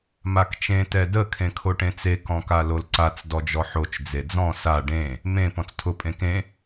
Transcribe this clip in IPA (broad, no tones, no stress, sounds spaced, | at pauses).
m a k t͡ʃ ẽ t ɛ d ə kʰ ẽ kʰ o ʈ ẽ t͡s e k ɔ̃ k a l o l ǀ a t͡s d ɔ d͡ʒ ɔ ħ o t͡ʃ d͡z e d͡z ɔ̃ s a ɖ ẽ | m ẽ p ɔ̃ t͡s tʰ ʊ pʼ ẽ k ẽ